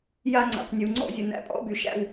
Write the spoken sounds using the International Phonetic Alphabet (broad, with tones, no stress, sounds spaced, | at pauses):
j a˦ ŋ͡ǀ æ̰˨ q nʲ u˨ ŋ͡ǀ ɔ̰˦ zʲ ə˨ n æ̰˦ pʼ ɔ̰˦ b y˨ ʃ æ̰˦˨ w